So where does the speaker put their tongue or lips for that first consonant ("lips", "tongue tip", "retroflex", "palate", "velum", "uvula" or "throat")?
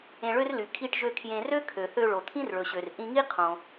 retroflex